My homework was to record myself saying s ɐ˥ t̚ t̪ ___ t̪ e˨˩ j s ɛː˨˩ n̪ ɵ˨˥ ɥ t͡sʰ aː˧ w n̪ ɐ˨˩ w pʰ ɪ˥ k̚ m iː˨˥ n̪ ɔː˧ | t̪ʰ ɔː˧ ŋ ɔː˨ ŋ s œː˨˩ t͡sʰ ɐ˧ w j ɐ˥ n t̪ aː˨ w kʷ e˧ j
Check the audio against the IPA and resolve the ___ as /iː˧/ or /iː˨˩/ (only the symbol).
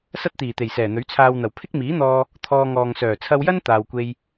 iː˨˩